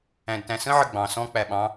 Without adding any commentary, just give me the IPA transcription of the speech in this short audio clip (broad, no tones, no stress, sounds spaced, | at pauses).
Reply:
æ̃ d t æ̃ s ə̃ ʕ ə ɡ͡b ɑ̃ s ɔ̃ k͡p æ ɓ ɑ̃